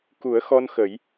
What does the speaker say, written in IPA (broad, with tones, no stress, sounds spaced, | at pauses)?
k u˨˩˦ ə̯ x ɔ˧ n x ə˨˩˦ j